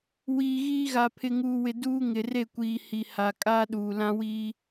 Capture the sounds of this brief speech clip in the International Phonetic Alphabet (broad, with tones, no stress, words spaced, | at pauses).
wiː˨ɣiː˦ɣa˨ pʰɪ˨ŋuː˨wɪ˨ duː˦ ŋɪ˨re˦˨kʷiː˨ hi˨ha˨ kʼaː˦ɗuː˨lã˦wiː˦